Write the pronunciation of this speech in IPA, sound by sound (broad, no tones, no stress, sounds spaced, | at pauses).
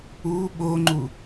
u ɓ o ŋ͡ǃ u